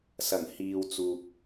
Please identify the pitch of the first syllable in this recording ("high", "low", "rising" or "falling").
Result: low